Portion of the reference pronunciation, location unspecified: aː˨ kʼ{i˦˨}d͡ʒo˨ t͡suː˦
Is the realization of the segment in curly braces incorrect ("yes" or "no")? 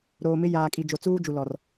yes